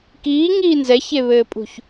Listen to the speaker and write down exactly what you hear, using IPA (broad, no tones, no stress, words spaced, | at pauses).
kiːŋiː nzɛçeβɘːpʼṳç